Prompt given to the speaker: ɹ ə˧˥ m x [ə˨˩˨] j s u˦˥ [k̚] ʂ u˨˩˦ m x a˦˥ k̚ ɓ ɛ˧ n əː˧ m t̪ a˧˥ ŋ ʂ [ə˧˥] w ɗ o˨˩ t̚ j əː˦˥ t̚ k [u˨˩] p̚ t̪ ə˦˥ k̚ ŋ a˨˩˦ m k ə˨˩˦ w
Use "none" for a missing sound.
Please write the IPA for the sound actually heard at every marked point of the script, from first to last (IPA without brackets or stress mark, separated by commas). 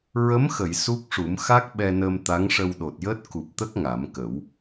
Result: ə˨˩˨, k̚, ə˧, u˨˩